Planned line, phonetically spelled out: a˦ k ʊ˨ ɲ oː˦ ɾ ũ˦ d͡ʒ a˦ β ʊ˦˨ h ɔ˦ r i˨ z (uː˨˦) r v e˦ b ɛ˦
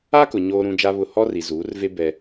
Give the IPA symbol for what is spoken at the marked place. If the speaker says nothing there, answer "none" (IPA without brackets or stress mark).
uː˨˦